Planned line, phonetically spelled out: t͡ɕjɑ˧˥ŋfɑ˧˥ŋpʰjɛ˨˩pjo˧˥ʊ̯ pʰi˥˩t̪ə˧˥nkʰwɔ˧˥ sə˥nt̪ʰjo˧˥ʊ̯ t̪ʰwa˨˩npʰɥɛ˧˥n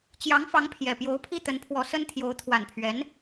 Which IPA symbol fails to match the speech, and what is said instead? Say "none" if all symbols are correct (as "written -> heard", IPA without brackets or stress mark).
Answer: kʰ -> pʰ